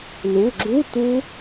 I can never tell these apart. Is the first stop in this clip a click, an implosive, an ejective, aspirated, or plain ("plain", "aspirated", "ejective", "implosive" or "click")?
click